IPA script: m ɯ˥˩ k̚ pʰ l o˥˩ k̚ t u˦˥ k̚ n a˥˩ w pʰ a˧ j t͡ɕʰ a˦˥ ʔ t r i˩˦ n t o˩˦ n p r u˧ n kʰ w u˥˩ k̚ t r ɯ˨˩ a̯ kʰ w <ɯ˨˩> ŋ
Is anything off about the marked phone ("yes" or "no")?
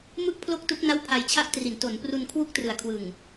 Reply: no